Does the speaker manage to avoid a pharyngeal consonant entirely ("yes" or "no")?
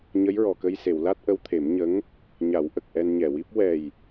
yes